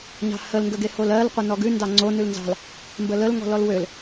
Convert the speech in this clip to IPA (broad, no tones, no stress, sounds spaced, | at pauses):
ɲ ɑ̤ h ə l ŋ ɡ ə ɡ e h o l ɜ l qʷ ə n ɔ ɡ ʉ n d ɑ ŋ͡ǀ o n ʉ l n z ɑ̤ l | m b ə l ə l ŋ ɔ̤ l ɔ l w ø l